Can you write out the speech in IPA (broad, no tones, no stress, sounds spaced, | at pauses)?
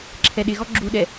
ǁʰ ɛ ɗ ɪ ɣ ɔ ɡ͡ǁ u ɗ ɛ